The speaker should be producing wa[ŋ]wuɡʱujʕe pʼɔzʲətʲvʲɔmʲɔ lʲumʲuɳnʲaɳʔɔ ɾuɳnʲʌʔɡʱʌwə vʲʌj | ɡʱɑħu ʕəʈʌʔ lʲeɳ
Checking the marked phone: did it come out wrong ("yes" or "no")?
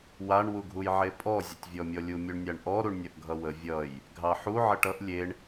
yes